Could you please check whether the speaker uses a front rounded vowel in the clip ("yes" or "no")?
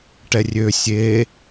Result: yes